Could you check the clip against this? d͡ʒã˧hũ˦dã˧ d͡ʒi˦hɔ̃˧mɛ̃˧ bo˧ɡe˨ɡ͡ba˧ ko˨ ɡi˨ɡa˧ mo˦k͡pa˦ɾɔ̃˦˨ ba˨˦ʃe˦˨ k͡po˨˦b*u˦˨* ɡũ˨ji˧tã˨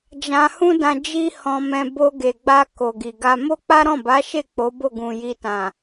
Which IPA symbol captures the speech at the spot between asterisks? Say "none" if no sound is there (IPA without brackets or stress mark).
o˦˨